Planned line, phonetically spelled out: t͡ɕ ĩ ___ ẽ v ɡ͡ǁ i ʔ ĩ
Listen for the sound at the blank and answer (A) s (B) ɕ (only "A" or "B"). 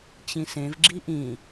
A